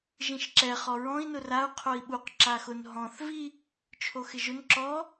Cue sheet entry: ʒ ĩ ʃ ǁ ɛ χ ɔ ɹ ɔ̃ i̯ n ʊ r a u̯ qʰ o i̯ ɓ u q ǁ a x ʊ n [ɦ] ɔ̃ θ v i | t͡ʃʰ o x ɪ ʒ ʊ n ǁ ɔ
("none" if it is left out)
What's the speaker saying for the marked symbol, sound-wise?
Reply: ɦ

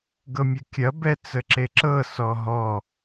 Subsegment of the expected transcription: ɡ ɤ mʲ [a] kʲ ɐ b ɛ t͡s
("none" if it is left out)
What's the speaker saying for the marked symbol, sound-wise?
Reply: ɐ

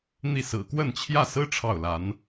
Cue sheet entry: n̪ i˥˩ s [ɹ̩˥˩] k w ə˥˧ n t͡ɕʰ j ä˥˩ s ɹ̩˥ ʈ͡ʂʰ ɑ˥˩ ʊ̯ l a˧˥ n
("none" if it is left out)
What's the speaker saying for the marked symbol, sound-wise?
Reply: ɹ̩˨˩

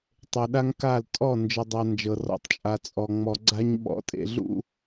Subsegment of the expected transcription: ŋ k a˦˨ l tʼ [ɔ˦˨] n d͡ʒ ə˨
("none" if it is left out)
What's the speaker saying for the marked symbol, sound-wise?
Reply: ɔ˦˨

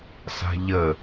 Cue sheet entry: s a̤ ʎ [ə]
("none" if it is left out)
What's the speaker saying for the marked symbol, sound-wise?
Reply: ə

